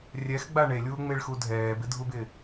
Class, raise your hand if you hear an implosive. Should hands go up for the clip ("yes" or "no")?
no